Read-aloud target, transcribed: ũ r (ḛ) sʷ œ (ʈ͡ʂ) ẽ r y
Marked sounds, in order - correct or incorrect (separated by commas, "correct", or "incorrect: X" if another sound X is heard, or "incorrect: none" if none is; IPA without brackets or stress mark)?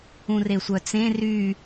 incorrect: e, incorrect: t͡s